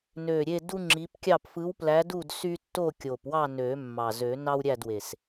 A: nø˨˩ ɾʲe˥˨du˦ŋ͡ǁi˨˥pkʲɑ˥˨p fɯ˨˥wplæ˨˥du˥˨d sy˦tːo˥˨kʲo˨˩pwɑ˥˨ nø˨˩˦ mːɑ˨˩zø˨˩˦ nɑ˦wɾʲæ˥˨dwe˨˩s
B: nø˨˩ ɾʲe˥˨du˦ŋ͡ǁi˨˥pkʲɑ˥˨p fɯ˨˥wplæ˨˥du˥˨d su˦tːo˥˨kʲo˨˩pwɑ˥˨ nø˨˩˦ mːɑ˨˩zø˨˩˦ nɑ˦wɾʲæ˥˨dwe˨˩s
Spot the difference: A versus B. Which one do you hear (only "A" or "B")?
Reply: A